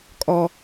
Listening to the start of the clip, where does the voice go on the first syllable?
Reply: high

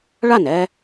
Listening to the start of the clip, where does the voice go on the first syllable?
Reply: falling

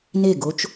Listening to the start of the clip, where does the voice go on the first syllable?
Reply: falling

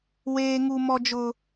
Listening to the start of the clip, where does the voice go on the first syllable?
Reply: high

